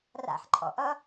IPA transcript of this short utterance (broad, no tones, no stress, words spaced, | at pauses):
ra̰ħǃʼɔ̰ʔʌ